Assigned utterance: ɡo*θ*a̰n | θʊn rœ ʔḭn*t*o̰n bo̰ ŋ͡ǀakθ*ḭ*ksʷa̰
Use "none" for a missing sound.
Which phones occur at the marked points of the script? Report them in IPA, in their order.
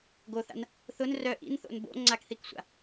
θ, θ, i

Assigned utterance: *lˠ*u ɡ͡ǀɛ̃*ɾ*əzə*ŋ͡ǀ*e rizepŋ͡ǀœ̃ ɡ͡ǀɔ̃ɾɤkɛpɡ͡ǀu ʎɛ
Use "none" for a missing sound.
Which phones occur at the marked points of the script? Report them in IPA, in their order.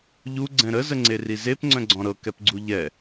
ʎ, ɾ, ŋ͡ǀ

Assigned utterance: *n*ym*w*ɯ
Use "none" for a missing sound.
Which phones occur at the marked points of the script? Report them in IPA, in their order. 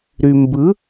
ɾ, b

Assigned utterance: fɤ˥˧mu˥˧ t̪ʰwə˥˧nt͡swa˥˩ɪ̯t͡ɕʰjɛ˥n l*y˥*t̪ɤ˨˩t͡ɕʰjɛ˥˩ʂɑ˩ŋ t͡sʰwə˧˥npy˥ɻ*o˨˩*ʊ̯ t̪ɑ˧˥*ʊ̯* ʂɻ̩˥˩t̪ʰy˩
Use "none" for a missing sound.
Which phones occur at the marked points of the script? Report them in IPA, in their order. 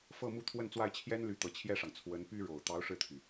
y˧˥, o˨˩, ʊ̯

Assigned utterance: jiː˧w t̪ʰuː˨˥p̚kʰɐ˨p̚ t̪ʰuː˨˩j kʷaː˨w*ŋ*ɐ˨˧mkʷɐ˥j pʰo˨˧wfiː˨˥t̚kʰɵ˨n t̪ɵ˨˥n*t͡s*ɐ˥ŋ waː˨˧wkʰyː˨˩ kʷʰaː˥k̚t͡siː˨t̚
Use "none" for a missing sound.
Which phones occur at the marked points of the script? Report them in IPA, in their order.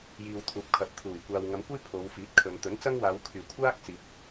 ŋ, t͡s

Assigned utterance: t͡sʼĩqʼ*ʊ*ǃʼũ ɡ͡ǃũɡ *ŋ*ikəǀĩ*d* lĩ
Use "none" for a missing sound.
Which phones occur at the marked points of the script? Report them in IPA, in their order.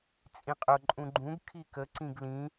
ʊ, kʰ, ɡ

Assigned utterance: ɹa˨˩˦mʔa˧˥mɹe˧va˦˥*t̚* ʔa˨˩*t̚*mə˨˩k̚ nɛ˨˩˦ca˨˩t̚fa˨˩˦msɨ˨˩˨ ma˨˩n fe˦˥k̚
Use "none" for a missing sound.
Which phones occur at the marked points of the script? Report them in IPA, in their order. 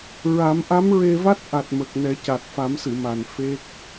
t̚, t̚

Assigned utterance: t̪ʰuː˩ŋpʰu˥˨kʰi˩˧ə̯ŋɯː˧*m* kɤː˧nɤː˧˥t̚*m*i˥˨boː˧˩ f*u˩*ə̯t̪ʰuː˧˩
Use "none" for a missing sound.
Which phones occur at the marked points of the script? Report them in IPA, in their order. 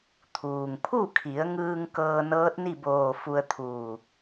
ŋ, n, u˧

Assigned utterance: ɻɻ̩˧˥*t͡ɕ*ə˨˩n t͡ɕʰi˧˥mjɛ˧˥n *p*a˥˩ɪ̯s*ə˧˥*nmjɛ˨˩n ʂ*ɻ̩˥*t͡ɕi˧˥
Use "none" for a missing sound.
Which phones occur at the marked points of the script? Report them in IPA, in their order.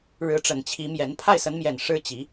ʈ͡ʂ, pʰ, ə˧˥, ɻ̩˥

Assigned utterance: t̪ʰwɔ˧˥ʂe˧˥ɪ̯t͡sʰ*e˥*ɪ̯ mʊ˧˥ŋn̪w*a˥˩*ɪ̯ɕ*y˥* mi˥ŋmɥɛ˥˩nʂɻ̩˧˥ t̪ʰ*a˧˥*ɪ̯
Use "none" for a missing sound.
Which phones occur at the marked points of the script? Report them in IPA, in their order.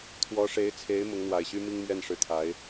e˧˥, a˨˩, y˥, a˧˥

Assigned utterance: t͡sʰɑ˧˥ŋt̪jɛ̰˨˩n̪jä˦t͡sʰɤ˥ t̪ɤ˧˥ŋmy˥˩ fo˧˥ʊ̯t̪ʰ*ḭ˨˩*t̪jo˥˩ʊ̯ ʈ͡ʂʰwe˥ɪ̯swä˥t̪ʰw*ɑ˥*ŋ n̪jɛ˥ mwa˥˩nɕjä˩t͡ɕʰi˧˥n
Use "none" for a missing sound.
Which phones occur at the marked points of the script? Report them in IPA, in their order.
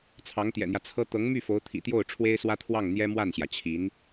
ḭ˨˩, ɑ˥˩

